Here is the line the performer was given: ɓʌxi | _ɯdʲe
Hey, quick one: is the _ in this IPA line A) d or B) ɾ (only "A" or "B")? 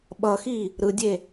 B